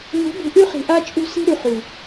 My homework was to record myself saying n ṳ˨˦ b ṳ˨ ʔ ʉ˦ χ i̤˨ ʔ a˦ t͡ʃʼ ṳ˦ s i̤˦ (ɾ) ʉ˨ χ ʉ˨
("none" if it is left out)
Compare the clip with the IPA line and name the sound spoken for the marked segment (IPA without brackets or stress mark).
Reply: ɾ